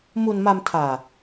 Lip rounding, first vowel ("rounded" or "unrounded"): rounded